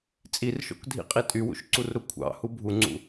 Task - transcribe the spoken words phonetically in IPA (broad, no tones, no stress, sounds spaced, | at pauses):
t͡sʼ i r ʃ o̰ k dʱ ḭ qʼ i tʼ y w ṵ ʃ ǀ u r ɾ u kʷʰ ɑ̰ h u bʱ u ŋ͡ǀ ṵ